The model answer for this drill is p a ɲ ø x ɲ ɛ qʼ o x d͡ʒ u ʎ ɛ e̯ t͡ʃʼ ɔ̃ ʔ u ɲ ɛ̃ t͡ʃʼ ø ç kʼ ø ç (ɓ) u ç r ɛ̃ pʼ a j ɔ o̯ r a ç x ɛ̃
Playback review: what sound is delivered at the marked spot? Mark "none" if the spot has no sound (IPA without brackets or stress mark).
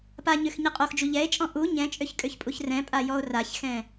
pʼ